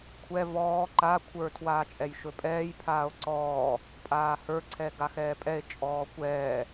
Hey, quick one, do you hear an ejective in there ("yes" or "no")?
yes